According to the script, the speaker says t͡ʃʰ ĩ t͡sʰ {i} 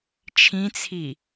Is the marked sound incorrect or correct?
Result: correct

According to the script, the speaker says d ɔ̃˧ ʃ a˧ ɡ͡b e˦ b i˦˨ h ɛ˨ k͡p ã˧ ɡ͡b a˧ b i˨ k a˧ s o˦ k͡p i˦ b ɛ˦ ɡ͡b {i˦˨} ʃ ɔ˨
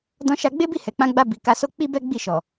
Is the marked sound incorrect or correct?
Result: correct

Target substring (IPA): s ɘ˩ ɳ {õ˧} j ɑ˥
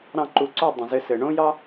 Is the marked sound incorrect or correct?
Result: incorrect: õ˥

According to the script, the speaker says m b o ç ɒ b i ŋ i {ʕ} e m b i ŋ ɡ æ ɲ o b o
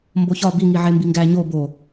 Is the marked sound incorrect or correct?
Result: correct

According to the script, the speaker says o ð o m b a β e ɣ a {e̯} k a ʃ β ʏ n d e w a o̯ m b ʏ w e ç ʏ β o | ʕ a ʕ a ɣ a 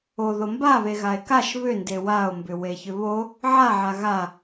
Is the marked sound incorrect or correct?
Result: correct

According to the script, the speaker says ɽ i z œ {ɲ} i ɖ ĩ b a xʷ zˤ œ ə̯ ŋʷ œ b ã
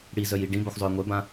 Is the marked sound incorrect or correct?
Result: incorrect: j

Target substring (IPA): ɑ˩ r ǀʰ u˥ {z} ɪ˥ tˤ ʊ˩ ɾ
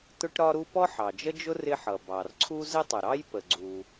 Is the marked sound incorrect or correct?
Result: correct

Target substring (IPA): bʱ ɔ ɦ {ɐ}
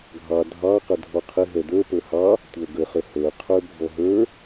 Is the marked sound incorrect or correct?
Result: incorrect: ə˞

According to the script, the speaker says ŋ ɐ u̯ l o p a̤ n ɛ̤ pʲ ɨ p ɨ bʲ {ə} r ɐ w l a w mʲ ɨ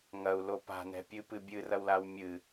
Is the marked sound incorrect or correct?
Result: incorrect: ɨ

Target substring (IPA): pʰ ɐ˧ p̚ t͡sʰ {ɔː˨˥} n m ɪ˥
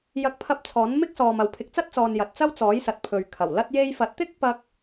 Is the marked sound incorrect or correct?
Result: correct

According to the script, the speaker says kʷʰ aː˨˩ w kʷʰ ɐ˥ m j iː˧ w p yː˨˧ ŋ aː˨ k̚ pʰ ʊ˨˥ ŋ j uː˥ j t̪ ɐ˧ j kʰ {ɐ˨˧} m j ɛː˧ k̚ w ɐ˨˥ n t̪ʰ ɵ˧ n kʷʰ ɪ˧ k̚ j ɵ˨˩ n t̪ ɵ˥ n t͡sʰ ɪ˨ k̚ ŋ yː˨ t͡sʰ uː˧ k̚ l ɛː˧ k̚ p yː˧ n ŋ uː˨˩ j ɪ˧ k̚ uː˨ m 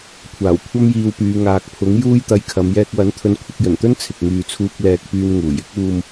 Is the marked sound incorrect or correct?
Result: correct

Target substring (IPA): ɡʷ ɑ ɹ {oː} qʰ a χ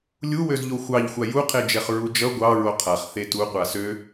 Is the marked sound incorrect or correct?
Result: incorrect: o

